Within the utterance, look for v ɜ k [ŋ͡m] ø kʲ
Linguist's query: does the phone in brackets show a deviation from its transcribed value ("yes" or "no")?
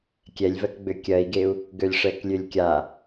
yes